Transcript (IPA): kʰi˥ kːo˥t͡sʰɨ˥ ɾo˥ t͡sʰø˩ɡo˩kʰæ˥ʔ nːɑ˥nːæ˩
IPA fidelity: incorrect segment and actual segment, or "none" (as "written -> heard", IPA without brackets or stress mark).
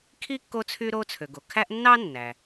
ɨ˥ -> y˥